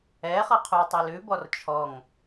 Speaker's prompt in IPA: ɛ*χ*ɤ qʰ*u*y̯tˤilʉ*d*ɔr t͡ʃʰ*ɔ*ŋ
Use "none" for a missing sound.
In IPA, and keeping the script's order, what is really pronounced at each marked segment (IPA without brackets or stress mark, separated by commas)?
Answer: χ, u, b, ɔ